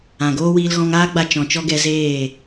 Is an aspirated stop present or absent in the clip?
absent